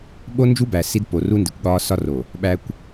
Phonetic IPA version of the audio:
ɓ o˦ n d͡ʒ u˦ b æ˨ s i˦ d p o˨ r u˦ n d i˨ kʷ ɠ ɒː˦ s ɒ˦ r o˨ | ɓ æ˨ kʷ

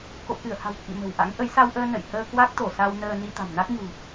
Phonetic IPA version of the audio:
k o̰˧˨ k ɨ˧˩ ə̯ h a̤˨˩ w k ḭ˧˨ m ə̤˨˩ w ʔ a̰˧˥ ŋ ʔ ə˨˦ j s a˧ w ʔ əː˧ n ə̰˧˨ j h əː˧ k w a˦˥ k̚ t̪ o˧˩ s a˧ w n əː˧ n i˧ t̪ a̤˨˩ m n a˦˥ k̚ ɲ ṳ˨˩

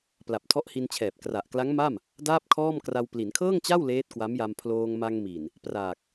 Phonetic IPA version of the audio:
p l a˨˩ p̚ tʰ ɔ˦˥ ʔ h i˧ n t͡ɕʰ ɛː˨˩ p̚ k r a˨˩ ʔ k l a˦˥ ŋ m a˥˩ m | d aː˥˩ p̚ kʰ ɔː˥˩ m k r a˧ w p l i˩˦ n kʰ ɤː˥˩ ŋ t͡ɕ a˥˩ w l eː˦˥ t̚ k w a˦˥ m j a˧ m pʰ l oː˧ ŋ m a˧ ŋ m i˨˩ n | p r aː˨˩ k̚

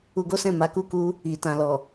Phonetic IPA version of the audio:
u˧ ɡ o˦ s ɛ̃˦˨ m a˨˦ k u˦˨ k u˧ | i˨ t ã˨ l ɔ˨

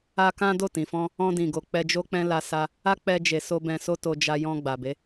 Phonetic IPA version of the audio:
a˧ k ã˦ d o˦˨ t ĩ˨ f ɔ̃˧ | ɔ̃˧ d ĩ˨ ɡ o˨ k͡p ɛ˧ d͡ʒ o˧ k͡p ɛ̃˧ l a˧ s a˧ | a˦ k͡p ɛ˧ d͡ʒ e˨ s o˧ b ɛ̃˧ s o˦ t o˧ d͡ʒ a˧ j ɔ̃˧ ɡ͡b a˨ b e˨˦

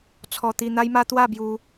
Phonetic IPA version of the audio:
t͡sʰ ɔ˧ t̪ i˧ n̪ a˦ j m a˦ t̪ w a˥˧ b j u˧

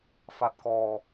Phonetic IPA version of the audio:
f a˦˥ t̚ k ɔː˧

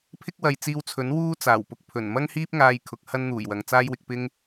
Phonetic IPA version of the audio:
pʰ ɪ˥ k̚ w ɐ˨ j t͡s iː˧ w t͡sʰ ɵ˨˥ n w uː˥ t͡s aː˨˩ w p ʊ˧ k̚ pʰ ɵ˨˩ n m ɐ˥ ŋ h iː˥ p̚ ŋ aː˧ j kʰ ʊ˨˥ k̚ h ɐ˥ n n̪ uː˨˩ j w ɐ˨ ŋ t͡s aː˥ j w ɪ˧ k̚ p ɪ˥ ŋ

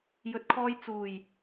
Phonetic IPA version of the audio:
j ɵ˨˥ t̚ kʰ ɔː˧ j t͡s uː˨˩ j

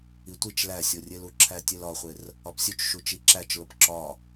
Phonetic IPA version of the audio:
i tʷ i t͡ʃ l æ sʲ o rʲ e l u ǁʰ æ tʲ e l ɒ χʷ e r | ɒ p sʲ u t͡ʃ ʃ u t͡ʃ i ǁ æ t͡ʃ l o p ǁ ɒ

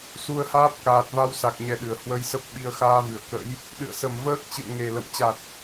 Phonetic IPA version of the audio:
s u˧ ə̯ h aː˦˥ p̚ k aː˨˩ t̚ v a˧ w s a˨˩ k̚ ɲ ɛ˧ ɗ ɨ˨˩ ə̯ h w ə˧ j s ə˦˥ p̚ ɓ i˧ ə̯ x aː˧ v ɨ˨˩ ə̯ k ə̰˧˥ j | ɗ ɨ̰˧˨ ə̯ s ə˧˩ m v əː˦˥ k̚ t͡ɕ ɨ̰˧˨ ə̯ ŋ e˨˩ l ə̰˧˨ m t͡ɕ a˨˩ t̚

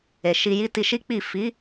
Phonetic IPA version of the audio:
e˨ ʃ i˧ j i˦ t i˧ ʃ i˦ k͡p i˦˨ f i˨˦

